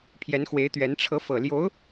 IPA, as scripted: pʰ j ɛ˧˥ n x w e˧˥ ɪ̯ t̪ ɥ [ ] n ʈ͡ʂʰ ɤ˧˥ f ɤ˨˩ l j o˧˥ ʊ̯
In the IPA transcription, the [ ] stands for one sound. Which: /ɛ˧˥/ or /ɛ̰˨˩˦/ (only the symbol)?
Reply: ɛ˧˥